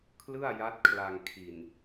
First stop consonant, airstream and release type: aspirated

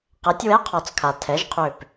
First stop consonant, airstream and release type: plain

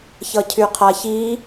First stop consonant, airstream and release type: aspirated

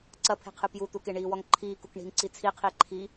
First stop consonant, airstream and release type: click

